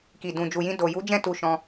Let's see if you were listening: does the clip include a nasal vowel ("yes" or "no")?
yes